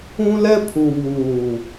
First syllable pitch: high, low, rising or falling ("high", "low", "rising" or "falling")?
high